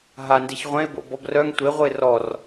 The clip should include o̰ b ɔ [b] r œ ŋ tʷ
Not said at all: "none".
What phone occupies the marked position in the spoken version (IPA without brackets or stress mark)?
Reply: b